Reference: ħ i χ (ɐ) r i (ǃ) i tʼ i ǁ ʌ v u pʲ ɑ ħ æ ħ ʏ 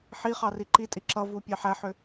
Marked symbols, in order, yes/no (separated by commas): no, yes